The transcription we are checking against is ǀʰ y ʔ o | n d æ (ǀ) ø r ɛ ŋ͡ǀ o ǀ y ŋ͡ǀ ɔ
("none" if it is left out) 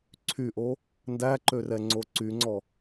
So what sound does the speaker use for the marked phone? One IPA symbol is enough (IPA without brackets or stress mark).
ǃ